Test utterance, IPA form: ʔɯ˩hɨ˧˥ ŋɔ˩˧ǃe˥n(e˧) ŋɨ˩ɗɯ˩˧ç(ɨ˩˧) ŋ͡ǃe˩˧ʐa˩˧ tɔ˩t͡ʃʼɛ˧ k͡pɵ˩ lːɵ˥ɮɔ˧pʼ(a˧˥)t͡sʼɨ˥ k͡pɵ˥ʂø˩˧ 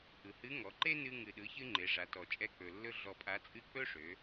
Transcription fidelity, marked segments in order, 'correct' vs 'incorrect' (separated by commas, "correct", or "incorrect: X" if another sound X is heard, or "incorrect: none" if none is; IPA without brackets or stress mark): incorrect: ɨ˧, incorrect: ɨ˧, correct